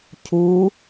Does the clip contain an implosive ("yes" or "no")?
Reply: no